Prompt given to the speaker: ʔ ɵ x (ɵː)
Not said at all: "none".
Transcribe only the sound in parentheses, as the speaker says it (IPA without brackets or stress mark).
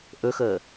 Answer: əː